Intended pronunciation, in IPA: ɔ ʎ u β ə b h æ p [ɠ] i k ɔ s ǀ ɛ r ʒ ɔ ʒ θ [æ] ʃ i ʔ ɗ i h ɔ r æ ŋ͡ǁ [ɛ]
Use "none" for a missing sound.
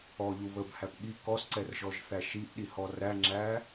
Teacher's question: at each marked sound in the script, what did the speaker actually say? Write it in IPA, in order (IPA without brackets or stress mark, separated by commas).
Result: ɠ, æ, æ